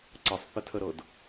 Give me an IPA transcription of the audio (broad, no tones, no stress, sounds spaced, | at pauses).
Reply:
ǀ ə sˤ θ ə tʰ ə ɾ ɤ d